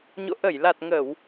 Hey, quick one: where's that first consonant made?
palate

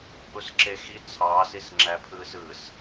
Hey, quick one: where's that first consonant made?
throat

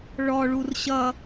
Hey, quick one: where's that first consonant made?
retroflex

